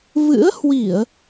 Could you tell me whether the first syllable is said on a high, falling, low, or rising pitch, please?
rising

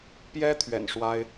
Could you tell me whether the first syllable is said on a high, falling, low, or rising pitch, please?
high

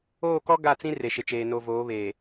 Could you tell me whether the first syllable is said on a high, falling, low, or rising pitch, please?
falling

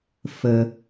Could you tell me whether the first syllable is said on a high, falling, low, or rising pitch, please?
low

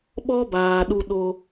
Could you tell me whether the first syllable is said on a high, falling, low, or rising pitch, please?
high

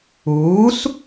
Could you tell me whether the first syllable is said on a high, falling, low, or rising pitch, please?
rising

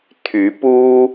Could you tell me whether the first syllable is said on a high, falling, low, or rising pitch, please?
rising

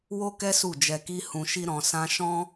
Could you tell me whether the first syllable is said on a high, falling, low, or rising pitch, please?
high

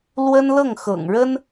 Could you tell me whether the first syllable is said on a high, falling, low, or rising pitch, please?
high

